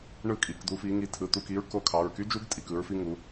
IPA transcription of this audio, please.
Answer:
ɳ ɯ˥˩ kʼ i˩˧˩ k d̪ u˨˦ f i˨˦ ŋ i˨˦ tʰ ɯ˩˧˩ t̪ u˥˩ k i˦˥ ɹ k o˦˥ kʰ ɑ˩˧˩ ɹ k y˦˥ d͡ʒ u˦˥ ɡ tʼ i˩˧˩ k ɯ˨˦ ɹ f i˦˥ ŋ u˨˦

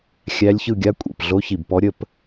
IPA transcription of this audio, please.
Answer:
xʲ æ˧˥ lʲ ç ɯ˦˨ ɡʲ a˧˥ kʷʼ ḭ˨˩ p ɮ o˧˥ ç i˨˩ b p ɔ˧˥ ɾʲ ə˦˨ p

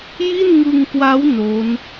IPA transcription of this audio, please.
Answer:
j i˥˩ n ŋ ɯ˧ ŋ k w a˦˥ w n o˦˥ n

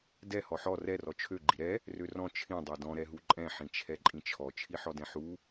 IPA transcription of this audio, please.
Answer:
d ɛ h ɔ ħ ɔ r ɛ r ɔ t͡ʃʰ ø ɡ͡ǃ i ɾ ɛ | r ø r ɔ̃ t͡ʃʰ ĩ dˤ ɛ d ɔ̃ ɾ ɛ ɦ u ǃʼ ɛ̃ ħ ĩ t͡ʃʰ ɛ ǃʼ ĩ t͡ʃʰ ɔ t͡ʃʰ i ħ ɔ d ɛ̃ ħ u

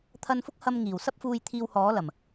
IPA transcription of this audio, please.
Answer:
t̪ʰ ɐ˧ n f ʊ˥ k̚ h ɐ˧ m ŋ iː˨˩ w s ɐ˥ p̚ f uː˧ j t̪ʰ iː˧ w h ɔː˨˥ l ɐ˨˩ m

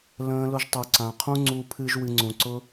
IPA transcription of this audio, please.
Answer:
l ə̃ː˧ l ʊ˧ ʒ tˤ u˨ ǀ ã˨ qʰ ũ˧ ŋ͡ǀ u˨ pʰ ɨ˨ ʒ w ɨ˨ ŋ͡ǀ ũ˨ ǀ ʊ˧

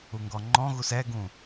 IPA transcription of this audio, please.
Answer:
u ŋ ɡ ɔ ŋ͡ǃ ɔ̃ ɣ u s ɛ ɡ ũ

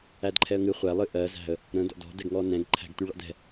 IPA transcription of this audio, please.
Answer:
æ d ǃʰ ɛ ə̯ ŋ ɨ χʷ ɛ lˠ ɨ ʔ ɜ z æ̤ ə̯ | ɾ ə̃ d ɔ̰ d ɔ̤ d ɛ ɡ ŋ ɔ n ɛ̃ ɡ ǃʰ æ̤ ɡ t y ɭ ɔ̰ d ɛ̤

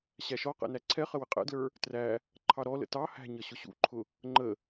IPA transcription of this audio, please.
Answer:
ɕ æ ʃ ɔ q ɛ̰ n æ ǀʰ ɛ χ ə w ɪ qʼ ɛ̰ d l ə˞ | t r æ | ǃʰ ɑ ɾ ɔ l ə̰ t ɑ h æ̤ ɲ ʌ ɕ ʊ ɕ ṵ ǃʰ ʊ | ŋ͡ǃ ə

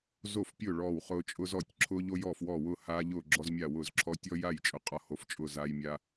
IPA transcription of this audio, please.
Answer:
z o˥˩ f pʲ ʊː˥˩ ɭ ɔː˥˩ w χ ʊː˦ t͡ʃʼ ʊ˦ z ɔ˥˩ tʲ ǁʰ ʊː˦ ʎ o˦ j ɔː˥˩ f w ɔː˥˩ w ʊː˥˩ h aː˦ ʎ ʊː˥˩ ɡ͡ǁ ɔ˦ z mʲ a˥˩ w ʊː˥˩ z ǁʰ ɔ˦ tʲ ɔ˦ j a˥˩ j t͡ʃʼ ʊ˦ qʼ ɒ˦ h o˥˩ f t͡ʃʼ ʊ˥˩ z aː˦ j mʲ a˦

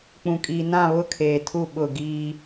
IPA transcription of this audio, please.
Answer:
k͡p ũ˨ kʼ iː˨ n ã˦˨ β ʊ˦˨ kʰ eː˨ tʰ u˦˨ ɓ ʊ˦˨ ɡ iː˦

